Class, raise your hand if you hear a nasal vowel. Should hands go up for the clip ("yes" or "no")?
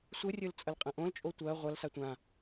yes